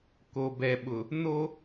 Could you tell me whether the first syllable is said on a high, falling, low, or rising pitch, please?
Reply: low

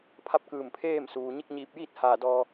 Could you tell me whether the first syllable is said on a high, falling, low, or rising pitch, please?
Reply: falling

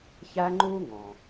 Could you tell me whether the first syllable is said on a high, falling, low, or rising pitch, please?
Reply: high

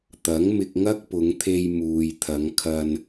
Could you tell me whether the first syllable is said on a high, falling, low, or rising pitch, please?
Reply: rising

